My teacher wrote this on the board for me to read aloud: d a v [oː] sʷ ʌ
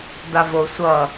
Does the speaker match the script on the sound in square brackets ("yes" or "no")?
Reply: no